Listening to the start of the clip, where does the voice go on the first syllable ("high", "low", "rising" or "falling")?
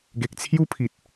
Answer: low